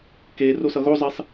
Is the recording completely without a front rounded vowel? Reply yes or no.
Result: yes